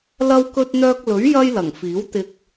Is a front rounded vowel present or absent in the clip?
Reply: present